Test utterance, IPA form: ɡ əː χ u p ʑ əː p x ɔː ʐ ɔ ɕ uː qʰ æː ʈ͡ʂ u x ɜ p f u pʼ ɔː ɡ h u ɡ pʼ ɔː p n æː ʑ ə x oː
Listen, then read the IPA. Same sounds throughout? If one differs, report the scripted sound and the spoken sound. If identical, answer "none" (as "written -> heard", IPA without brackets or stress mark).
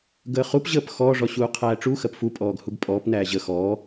oː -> ɔː